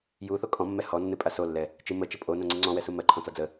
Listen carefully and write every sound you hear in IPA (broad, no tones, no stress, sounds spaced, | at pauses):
j u θ o kʼ ɔ̃ mː ɛ h ɔ nː ɨ pʼ a s o lː ɛ | t͡ʃ ɨ m ə t͡ʃ ə pʼ o n õ ŋ͡ǀ ɨ ŋ͡ǀ ɔ̃ w ɛ s u m ɜ ǃʰ ɔ̃ t͡s ɔ d͡z ə